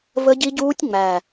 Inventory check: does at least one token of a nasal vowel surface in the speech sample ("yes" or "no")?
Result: no